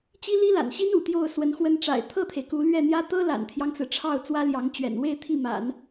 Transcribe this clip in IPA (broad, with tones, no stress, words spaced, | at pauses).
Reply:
t͡ɕi˥li˥la̰˨˩nɕi˥n ṵ˨˩t̪jo˥˩ʊ̯ swə˧˥nxwə˥n ʈ͡ʂa̰˨˩ɪ̯t̪ʰɤ˥˩t̪ʰe˩ɪ̯ ku˧˥lɥɛ˥˩n̪jä˥ t̪ɤ˥la̰˨˩nt̪ʰjɑ˦ŋt͡sɹ̩˩ ʈ͡ʂʰɑ˥˩ʊ̯ t͡swä˥ljɑ˧˥ŋt͡ɕɥɛ̰˨˩n we˥˧ɪ̯ t̪ʰi˥˩ma̰˨˩˦n